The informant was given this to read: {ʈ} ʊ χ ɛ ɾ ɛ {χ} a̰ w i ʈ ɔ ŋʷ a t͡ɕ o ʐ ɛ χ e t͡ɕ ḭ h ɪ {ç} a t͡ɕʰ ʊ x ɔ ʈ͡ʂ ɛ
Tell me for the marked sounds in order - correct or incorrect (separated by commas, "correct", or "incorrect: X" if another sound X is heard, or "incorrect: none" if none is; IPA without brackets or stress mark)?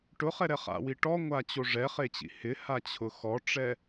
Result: correct, correct, incorrect: h